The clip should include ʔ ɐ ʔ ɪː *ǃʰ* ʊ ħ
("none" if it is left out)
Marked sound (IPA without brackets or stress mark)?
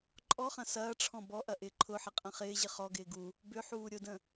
ǃʰ